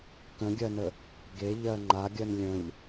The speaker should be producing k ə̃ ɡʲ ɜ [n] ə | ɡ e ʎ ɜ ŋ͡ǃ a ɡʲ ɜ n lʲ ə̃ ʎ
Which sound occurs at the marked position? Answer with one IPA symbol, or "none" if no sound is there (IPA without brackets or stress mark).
n